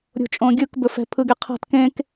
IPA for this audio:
ɾʲ o̤ t͡ʃʼ õ ɡʲ ɯ k b ɵ f ɛ̤ pʰ ɯ ɡ e qʰ a̤ t k ẽ k

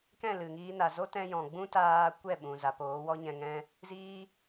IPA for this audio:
k ɛ̃˦˨ l ɨ˨ ŋ iː˧ n a˨ z o˦ t ɛ̃˧ j ɔ̃˨ ɡ͡b ũ˦ t aː˧ kʷ ɛ˦˨ ɓ ũ˨ z a˨ p oː˨˦ w ɔ˦ ɲ ɛ̃˧ ŋ ɛ̃˦ | z iː˦

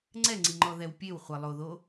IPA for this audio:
ŋ͡ǀ ɛ ŋ͡ǀ i ŋ͡ǃ ɔ ð ɛ w pʲ e w χʷ ɛ lˠ o ð o

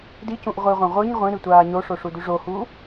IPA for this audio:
d i c ũ ʔ ʁʷ i ʁʷ ɐ̃ ʁʷ ɨ ɲ ʁʷ ĩ ɾ ɨ tʷ aː ɲ o ʂ o ʂ u d ʉ ʐ o h uː

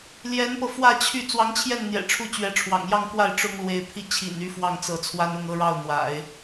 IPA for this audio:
l j ɛ˧˥ n p ɤ˧ f w ä˥˧ t͡ɕʰ y˥˩ t͡s w ɑ˧˥ ŋ t͡ɕʰ j ɛ˥˩ n n̪ j ɛ̰˨˩ ʈ͡ʂʰ u˧˥ t͡ɕ ɥ ɛ˧˥ ʈ͡ʂʰ w ɑ̰˨˩ ŋ j ɑ˥˧ ŋ k w a˥˩ ɪ̯ ʈ͡ʂ ʊ˥ ŋ l w e˧˥ ɪ̯ pʰ i˥˩ t͡ɕʰ ḭ˨˩ n y˧˥ f w ɑ˥˩ ŋ t͡s ɤ˧˥ t͡sʰ w a˥ n ʊ˥˧ ŋ ɤ˥˧ ɻ ɑ˥˩ ʊ̯ n̪ w a̰˨˩˦ ɪ̯

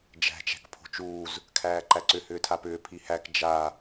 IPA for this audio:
d͡ʒ æ̤ t͡ʃ æ̤ k pʰ o̤ t͡ʃ uː z | kʰ æː ǃ æ ǀ ʏ h ʏː tʰ a p ʏː pʰ i h æ k d͡ʒ a

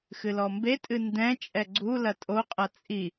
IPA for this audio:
x ɨ l ɔ m b e tʼ ɨ n d ɛ̃ t͡ʃʼ ɛ ɡ͡ǀ u l ɐ tʼ o qʼ ɐ t͡sʼ i

